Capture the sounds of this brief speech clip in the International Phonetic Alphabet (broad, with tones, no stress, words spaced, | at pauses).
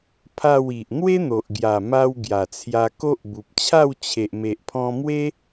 pʰa˥˧wi˨ʔ n̪we˦n̪o˨ʔɡja˨˩ma˧w ɡja˨˩t͡sʰja˧ko˦ʔ bu˨p̚t͡ɕʰa˥˧w t͡ɕʰe˨ʔ me˨ʔpʰɔ̃˧ mwe˦